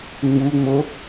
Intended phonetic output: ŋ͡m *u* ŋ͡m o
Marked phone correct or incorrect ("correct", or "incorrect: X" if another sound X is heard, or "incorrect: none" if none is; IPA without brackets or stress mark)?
correct